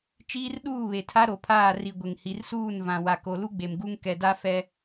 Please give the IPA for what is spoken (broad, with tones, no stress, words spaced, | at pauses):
t͡ʃiː˦rɗuː˦˨βe˨tʰa˦ ɾo˨pʰaː˦˨ri˨ ɡʷɪ˨ŋhi˨rsuː˦˨n vã˨ wa˨ko˨lu˦ɡ͡be˨m ɡu˦ŋkɛ˨da˦ fɛ˦